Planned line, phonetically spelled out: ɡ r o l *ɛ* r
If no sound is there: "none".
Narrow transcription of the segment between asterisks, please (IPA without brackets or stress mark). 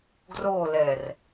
ɛ